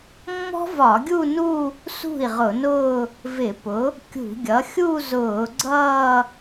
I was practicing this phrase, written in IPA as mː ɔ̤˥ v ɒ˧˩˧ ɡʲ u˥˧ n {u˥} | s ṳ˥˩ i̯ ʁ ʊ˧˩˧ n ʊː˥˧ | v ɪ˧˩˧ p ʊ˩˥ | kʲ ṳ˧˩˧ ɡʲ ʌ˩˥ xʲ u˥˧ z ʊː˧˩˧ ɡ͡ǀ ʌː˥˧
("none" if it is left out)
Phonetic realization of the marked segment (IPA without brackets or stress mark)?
u˥˧